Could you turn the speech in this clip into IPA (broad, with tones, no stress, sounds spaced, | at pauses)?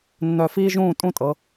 nː œ˧˩ f iː˥ ʒ ũː˥˧ tʼ ũ˥˧ tʼ ɤ˩˧